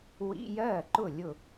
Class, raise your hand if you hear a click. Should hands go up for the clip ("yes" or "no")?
yes